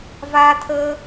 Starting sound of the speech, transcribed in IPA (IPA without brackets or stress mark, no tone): v